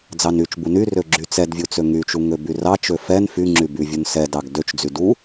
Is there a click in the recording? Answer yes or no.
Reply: yes